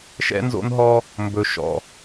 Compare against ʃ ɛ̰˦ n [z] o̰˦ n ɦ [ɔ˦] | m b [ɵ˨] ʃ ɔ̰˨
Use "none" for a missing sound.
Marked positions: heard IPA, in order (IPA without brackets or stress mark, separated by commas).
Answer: z, ɔ˦, ɵ˨